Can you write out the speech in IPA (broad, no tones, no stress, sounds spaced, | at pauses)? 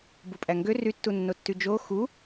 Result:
b u pʼ æ ŋ ɡ ø r y tː u nː o tː y d͡ʒ o x u